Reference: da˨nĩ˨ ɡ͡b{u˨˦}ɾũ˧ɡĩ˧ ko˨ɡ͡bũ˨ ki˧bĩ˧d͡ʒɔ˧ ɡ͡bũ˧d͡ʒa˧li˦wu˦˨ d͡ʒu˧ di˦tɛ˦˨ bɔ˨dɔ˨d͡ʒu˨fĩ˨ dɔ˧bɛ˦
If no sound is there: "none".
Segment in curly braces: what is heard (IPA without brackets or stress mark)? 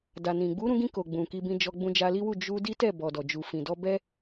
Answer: u˨˦